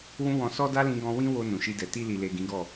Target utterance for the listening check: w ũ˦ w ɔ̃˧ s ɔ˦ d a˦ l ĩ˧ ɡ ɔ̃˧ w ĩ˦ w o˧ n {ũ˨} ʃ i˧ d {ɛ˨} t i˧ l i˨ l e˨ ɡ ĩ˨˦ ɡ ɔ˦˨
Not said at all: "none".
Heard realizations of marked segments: ũ˨, ɛ˨

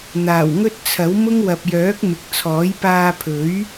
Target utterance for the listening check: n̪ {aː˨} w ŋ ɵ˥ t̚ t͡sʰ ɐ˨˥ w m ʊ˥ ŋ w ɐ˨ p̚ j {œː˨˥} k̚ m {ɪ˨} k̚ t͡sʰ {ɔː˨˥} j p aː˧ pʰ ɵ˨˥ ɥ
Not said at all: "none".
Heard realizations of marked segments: aː˨˩, œː˨˥, ɪ˨, ɔː˨˥

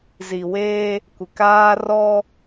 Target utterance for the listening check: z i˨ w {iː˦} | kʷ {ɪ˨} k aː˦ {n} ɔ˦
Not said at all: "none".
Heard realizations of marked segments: eː˦, ɪ˨, r

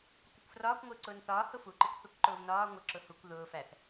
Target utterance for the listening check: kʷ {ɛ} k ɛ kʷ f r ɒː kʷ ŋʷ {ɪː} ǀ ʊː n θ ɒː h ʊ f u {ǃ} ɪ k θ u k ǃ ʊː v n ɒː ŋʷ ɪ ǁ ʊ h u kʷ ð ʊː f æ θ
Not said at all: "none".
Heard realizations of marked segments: ə, ɪː, ǃ

